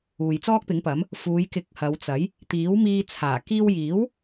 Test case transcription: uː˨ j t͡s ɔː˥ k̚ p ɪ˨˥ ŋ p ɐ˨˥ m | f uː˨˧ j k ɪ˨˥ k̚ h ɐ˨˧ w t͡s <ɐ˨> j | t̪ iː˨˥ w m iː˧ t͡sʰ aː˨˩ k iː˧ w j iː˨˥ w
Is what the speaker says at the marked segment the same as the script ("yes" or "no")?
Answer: no